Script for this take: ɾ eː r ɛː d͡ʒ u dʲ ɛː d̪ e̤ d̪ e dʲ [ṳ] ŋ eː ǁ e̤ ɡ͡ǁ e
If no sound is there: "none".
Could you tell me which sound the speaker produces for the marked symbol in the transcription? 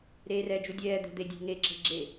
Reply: ṳ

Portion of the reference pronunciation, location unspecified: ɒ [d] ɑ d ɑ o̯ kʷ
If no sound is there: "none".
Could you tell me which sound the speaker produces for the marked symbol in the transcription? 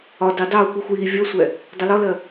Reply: d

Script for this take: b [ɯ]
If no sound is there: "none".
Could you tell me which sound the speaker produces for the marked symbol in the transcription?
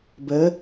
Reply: ə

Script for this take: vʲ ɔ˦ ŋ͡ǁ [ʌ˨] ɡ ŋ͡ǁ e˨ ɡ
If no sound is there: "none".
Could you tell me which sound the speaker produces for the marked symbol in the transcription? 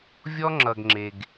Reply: ʌ˨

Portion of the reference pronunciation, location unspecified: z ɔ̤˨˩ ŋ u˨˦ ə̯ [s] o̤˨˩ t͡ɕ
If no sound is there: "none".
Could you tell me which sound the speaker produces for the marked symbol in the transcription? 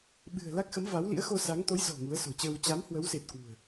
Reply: s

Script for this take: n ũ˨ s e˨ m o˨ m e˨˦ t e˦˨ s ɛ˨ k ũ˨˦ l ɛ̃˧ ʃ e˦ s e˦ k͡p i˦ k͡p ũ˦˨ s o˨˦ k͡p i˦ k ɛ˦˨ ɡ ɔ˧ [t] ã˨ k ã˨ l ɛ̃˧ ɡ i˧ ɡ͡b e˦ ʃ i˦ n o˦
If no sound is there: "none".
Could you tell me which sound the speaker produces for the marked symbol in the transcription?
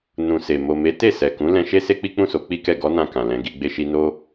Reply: n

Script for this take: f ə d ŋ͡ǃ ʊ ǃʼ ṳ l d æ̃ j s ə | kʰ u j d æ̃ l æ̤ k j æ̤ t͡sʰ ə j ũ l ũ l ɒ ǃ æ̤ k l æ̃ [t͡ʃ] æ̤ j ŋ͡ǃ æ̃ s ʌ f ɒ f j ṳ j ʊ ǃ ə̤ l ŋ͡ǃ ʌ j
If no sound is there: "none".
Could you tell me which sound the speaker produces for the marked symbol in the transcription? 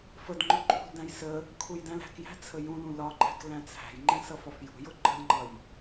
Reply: t͡sʰ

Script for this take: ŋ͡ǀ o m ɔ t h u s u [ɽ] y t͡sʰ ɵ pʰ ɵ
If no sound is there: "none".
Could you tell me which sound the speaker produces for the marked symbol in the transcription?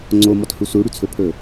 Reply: ɽ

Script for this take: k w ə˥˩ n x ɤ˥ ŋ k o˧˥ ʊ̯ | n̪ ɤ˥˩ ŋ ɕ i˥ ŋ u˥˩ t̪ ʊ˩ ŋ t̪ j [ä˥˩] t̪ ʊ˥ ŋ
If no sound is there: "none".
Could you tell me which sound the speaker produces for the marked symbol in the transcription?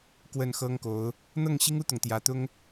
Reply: ä˧˥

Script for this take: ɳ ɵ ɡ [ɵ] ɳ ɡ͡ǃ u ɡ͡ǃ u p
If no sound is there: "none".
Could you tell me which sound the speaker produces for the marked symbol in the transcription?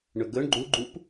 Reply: ɵ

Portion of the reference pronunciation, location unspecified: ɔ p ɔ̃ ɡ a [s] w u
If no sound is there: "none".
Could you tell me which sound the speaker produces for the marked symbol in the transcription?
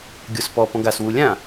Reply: s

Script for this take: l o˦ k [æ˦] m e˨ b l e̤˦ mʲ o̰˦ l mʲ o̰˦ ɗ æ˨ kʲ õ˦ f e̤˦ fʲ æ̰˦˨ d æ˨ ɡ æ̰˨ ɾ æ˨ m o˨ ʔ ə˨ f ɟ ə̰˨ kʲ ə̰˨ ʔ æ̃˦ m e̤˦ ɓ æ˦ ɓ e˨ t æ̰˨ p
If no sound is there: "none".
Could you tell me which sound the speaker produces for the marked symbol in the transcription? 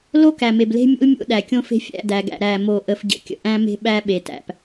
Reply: æ˨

